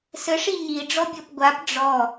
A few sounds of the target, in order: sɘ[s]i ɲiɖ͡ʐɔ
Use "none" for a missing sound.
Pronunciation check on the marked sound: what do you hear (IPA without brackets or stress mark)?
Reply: ʂ